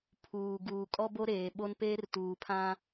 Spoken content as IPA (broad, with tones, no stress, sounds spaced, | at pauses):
pʰ uː˨ ɡ uː˨ kʼ ɔ˦ b o˦ ɾ eː˨ ɓ o˦ n p eː˦ r t uː˨ pʰ ã˦